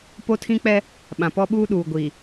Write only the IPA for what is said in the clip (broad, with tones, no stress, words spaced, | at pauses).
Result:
po˦tʰĩ˦k͡pɛ˦ | ɓã˨pɔ˦ɓuː˦ɗuː˨ ɡʷiː˨